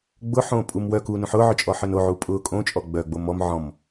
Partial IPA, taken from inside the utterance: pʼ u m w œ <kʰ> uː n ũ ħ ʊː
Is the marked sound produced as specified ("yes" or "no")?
no